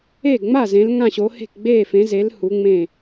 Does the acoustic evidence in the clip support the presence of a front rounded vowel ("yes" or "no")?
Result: no